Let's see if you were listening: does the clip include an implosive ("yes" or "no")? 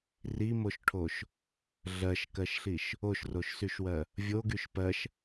no